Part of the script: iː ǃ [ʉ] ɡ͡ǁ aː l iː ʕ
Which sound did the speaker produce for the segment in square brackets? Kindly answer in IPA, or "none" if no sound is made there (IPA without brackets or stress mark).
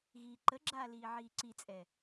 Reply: ə